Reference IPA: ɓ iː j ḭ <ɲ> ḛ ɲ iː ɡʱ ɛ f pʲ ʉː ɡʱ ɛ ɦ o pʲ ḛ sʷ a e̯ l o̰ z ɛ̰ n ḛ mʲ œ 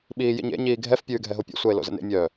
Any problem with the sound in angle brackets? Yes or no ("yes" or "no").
no